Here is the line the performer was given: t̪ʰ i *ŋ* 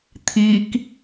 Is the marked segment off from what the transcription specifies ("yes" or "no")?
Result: yes